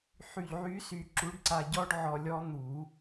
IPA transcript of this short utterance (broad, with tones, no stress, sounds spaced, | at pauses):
ħ y˧˩ ʎ ʕ y˦˥ s y˧ ǁ u˨˥ ɖ ǀ a˧ ɟ ɔ˦˥ ɖ ʕ ɔ˧ lʲ ɔ˦˥ n̪ u˨˩˦